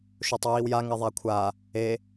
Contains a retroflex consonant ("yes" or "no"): no